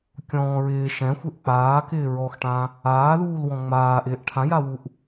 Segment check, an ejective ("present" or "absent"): absent